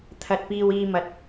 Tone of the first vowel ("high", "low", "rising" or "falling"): low